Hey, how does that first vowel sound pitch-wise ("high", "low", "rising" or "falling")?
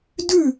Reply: falling